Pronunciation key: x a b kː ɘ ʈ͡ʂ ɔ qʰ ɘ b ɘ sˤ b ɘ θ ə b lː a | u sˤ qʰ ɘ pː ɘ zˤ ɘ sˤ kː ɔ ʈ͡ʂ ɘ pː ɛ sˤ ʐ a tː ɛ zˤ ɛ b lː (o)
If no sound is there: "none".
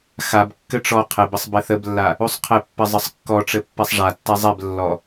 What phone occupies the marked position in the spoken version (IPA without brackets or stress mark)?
ɔ